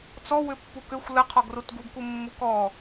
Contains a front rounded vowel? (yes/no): yes